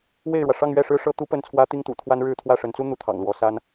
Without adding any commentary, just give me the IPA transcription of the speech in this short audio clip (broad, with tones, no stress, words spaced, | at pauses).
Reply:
we˥˩ɪ̯ɻwä˩ ʂɑ˥˧ŋɥɛ˥˩ʂɻ̩˥ ʂɤ˥ t̪u˥pə˥˩nt͡sʰwä˥ t̪i˥ŋt̪ṵ˨˩ t̪ʰwa˥nɻɻ̩˥˧ t̪ʰwä˥˩ʂə˧˥nt͡su˥ n̪u˧˥t̪ʰɑ̰˨˩ŋ lwɔ˧˥sa˥n